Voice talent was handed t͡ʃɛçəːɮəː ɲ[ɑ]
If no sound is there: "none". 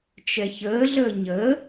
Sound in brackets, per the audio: ə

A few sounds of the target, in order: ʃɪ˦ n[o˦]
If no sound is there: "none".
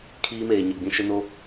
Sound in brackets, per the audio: o˦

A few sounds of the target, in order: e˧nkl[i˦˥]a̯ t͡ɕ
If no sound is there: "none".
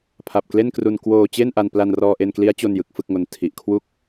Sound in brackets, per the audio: i˦˥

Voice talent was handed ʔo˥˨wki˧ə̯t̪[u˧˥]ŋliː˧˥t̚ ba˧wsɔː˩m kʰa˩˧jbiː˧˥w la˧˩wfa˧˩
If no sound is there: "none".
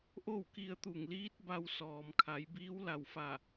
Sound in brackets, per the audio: u˧˩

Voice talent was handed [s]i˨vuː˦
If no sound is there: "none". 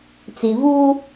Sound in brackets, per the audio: t͡s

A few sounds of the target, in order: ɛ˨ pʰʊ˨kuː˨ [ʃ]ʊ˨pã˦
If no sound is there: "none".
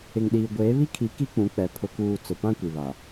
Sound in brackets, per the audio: t͡s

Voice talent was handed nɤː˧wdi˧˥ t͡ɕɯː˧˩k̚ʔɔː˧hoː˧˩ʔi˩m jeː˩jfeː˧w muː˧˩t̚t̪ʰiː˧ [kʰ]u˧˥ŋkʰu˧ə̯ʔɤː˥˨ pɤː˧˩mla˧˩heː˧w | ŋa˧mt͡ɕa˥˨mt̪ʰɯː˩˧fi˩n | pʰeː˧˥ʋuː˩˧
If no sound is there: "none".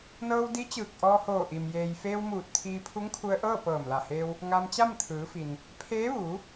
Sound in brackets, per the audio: pʰ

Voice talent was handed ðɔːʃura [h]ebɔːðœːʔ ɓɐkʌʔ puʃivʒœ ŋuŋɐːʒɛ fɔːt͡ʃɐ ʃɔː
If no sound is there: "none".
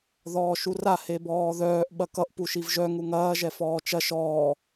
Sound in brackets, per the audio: h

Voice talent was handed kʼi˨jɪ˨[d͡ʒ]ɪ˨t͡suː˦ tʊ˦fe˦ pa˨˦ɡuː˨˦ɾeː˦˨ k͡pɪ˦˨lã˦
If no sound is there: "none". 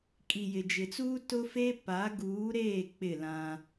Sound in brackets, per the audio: d͡ʒ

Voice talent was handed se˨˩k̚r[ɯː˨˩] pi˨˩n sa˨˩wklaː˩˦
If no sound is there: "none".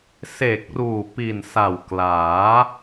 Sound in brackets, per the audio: uː˨˩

